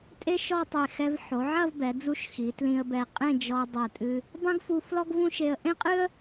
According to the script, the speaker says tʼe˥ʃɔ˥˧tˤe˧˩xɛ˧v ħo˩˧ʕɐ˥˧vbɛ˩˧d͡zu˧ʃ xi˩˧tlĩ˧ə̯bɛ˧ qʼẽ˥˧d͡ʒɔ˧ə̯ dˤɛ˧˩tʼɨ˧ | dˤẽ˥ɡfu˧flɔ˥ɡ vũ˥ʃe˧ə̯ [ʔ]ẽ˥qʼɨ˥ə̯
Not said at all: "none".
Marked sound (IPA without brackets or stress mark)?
ʔ